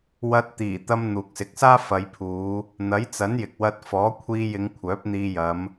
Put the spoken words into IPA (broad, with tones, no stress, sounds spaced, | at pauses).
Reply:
w ɐ˧ t̚ t̪ iː˨˩ t̪ ɐ˧ m n̪ uː˨ k̚ s ɪ˨˥ k̚ s aː˥ f ɐ˨˧ j pʰ uː˨˧ | n̪ ɐ˨˥ j t͡s ɐ˨˥ n j ɪ˨ k̚ w ɐ˧ t̚ f ɔː˨˥ kʷʰ iː˧ j ɪ˨˧ ŋ kʷʰ œː˨˥ p̚ n̪ iː˧ j ɐ˨˧ m